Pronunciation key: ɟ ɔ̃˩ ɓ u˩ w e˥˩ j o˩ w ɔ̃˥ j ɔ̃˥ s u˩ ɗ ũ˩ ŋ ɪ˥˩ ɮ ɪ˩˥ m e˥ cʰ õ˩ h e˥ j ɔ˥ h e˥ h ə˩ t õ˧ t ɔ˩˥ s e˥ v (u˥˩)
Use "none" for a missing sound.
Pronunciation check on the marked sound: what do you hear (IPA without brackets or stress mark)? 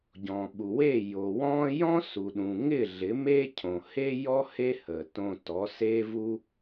u˥